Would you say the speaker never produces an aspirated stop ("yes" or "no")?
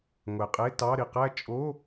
yes